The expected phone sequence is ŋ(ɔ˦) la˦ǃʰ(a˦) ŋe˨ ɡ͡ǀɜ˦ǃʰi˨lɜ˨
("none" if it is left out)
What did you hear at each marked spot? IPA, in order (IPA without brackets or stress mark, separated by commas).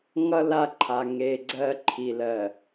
ʌ˦, a˨